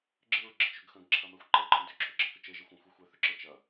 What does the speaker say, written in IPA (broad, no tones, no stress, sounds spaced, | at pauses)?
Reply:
ɡ͡ǁ ɨ ɹ ɡ͡ǁ ə t͡ʃ ʏ ɡ x ə̃ ɡ ǁʰ ɐ m ɛ xʷ ǃ ɛ ǃʰ ə̃ d ʏ ǁʰ ʏ ɡ͡ǁ ə̃ k ʏ t͡ʃ e ʒ ɨ xʷ ə̃ xʷ ɛ xʷ ɛ θ ʏ ǁ ə t͡ʃ ɐ